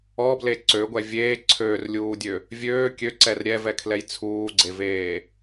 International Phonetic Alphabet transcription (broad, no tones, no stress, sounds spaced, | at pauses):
ɔ b l e ǀ ø ɡʷ ɛ vʲ eː ǀʰ øː r lʲ uː dʲ ø | vʲ øː kʲ ø ǀ ɛ r ɾʲ ɛ v ɛ kʰ l ɛ j t͡sʰ uː ɡ͡ǀ e v eː